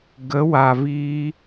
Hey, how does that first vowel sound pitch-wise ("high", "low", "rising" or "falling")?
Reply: rising